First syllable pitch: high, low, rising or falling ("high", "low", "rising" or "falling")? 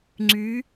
rising